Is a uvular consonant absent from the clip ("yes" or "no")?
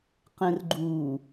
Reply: no